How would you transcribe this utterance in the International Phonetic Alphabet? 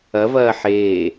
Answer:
ɐ v ɐː ħ eː

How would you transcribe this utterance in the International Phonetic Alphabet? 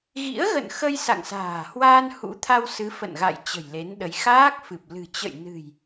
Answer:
ɣ ḭ˧˥ ə̯ ɣ ə̰˧˨ n x ə˧ j s a̰˧˨ ŋ s a̤ː˨˩ h w aː˧ n h ṵ˧˥ t̪ʰ a˧ w s ɨ˨˦ f ə̰˧˨ n ɣ a̰˧˨ j t͡ɕ ə̤˨˩ j l e˨˦ n ɗ ə˨˦ j x aː˦˥ k̚ f ɨ˨˩ p̚ l ɨ̤˨˩ t͡ɕ ə̰˧˨ j n ɨ̤˨˩ j

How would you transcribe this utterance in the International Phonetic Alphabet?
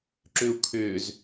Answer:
ǁ ʏ u̯ kʰ ʏː z

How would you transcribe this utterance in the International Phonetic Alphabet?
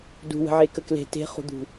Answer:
d ṳ w ə̤ ʕ e k ə k l e̤ t e̤ χ ṳ d̪ ṳ

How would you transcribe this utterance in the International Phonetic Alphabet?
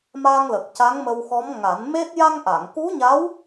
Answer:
m a˧ ŋ l ə˨˩ k̚ c a˧˥ ŋ m ə˧ w x ɔ˧˥ m ŋ a˨˩˦ n m e˦˥ t̚ j a˧ ŋ ʔ a˨˩˨ ŋ k u˧˥ ɲ a˧˥ w

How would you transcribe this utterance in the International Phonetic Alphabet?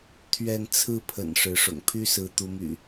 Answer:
t̪ʰ ɥ ɛ˥˨ n t͡sʰ ɹ̩˥˨ pʰ ə̰˨˩ n ʂ ɻ̩˨˦ ʂ ʊ̰˨˩ ŋ pʰ y˥˨ s ɹ̩˨˦ t̪ u˨˦ m y̰˨˩

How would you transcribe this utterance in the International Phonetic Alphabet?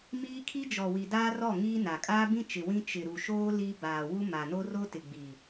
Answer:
m iː˦ kʰ i˦ d͡ʒ ɔ˨ w i˨ d aː˦ r ɔ˦˨ ŋ iː˦ n a˨ kʼ aː˦ b ĩ˦ t͡ʃ ɪ˨ w ĩ˦ t͡ʃ ɪ˨ ɾ u˨ ʃ oː˦ l i˦ b aː˨ w u˦ m a˨ n o˦ r o˦ t ɪ˨ ɡ͡b i˨

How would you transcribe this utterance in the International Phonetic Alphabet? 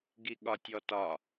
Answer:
ɡ i ɠ ɒ tʲ ɔ t ɒ

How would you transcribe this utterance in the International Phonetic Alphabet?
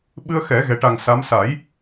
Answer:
ɓ ɨ˧ ə̯ x ɛ˨˩˦ ɣ ɛ˨˩ ʈ a˨˩ ŋ s a˧˥ m s a˨˩˦ j

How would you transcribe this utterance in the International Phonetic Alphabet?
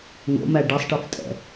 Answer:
ŋ o̰ m æ ɖ ɛ sˤ ʈ e f tʼ ɛ̰

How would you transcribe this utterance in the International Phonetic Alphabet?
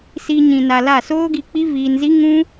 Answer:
s iː˧ ɲ ĩ˨ n a˨ l a˦˨ s oː˦ ɡ i˧ k͡p i˦ v iː˧ n z i˦ ŋ ũ˦

